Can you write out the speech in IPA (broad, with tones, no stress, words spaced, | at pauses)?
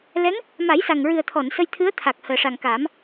lɛ˧˥ŋ | ma˨˩˦jsa˨˩ŋɹɨ˨˩ə̯t̪ʰɔ˨˩˨n sə˧jt̪ʰɨ˧˥ə̯t̪ʰa˨˩k̚ həː˨˩ʂa˨˩ŋkaː˨˩˦m